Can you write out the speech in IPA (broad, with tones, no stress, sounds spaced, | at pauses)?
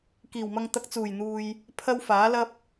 k iː˨˩ w m ɐ˧ ŋ t̪ ɐ˧ k̚ t͡s uː˨˩ j n̪ uː˨ j | pʰ ɐ˥ w f aː˨˥ l ɐ˥ p̚